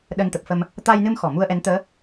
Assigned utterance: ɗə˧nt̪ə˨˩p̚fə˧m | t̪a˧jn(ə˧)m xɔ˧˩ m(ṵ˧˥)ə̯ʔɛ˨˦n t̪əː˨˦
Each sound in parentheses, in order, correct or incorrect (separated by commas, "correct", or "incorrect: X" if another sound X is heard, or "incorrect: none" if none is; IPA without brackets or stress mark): incorrect: ɨ˧, incorrect: u˧